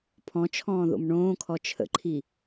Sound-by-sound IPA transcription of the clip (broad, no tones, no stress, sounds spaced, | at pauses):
pʰ ɔ̃ t͡ʃʰ ɔ̃ː ð o̰ m ɳ õː kʰ ɔ t͡ʃʰ ə̰ ǃʰ i